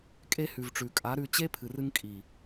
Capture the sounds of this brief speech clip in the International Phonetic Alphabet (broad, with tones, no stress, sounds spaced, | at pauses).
kʼ e˧ h ʉ˨ v ʈ͡ʂ ʉ˨ kʼ a˨˦ ɾ ʉ˧ t͡ɕ e˦ pʰ ɨ˨ r ɨ˧ ŋ kʼ i˨